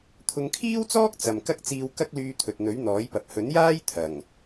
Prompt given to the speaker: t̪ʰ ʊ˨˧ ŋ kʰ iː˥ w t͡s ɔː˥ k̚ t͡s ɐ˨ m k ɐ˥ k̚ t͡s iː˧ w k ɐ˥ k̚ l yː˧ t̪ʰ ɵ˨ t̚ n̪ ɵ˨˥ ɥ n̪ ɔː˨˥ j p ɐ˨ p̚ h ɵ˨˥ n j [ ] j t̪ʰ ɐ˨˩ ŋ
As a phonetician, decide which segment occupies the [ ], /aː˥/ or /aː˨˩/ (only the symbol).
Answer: aː˥